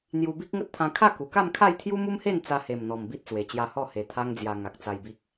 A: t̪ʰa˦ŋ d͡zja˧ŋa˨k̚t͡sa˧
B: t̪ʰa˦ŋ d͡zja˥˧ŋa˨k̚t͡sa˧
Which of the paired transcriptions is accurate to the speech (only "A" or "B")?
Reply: A